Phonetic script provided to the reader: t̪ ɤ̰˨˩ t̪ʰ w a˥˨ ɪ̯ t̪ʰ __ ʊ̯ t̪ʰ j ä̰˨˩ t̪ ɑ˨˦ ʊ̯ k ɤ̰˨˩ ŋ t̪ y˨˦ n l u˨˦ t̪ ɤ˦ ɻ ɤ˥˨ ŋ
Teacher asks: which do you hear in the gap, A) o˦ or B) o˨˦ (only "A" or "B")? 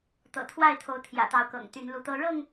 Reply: B